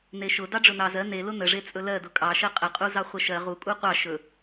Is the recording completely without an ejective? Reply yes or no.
no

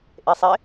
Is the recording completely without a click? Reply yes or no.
yes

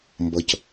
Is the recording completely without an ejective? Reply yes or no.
yes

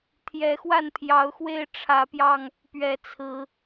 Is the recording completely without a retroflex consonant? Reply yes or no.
no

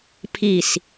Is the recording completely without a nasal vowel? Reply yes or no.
yes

